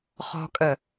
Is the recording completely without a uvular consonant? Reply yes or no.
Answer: no